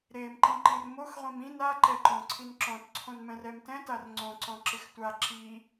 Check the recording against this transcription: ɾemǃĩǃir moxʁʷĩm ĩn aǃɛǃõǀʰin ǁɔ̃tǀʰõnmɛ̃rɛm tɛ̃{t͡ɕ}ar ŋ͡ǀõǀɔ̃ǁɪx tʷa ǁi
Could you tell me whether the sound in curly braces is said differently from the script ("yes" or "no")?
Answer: yes